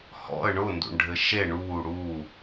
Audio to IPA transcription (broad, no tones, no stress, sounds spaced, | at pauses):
h ɔ̰ ə̯ ɳ ʊ n d ṵ ɳ ɖʱ ɘ ʃ e ɳ uː ɽ uː